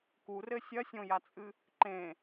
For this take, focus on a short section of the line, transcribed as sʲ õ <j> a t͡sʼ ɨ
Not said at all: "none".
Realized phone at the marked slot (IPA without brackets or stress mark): j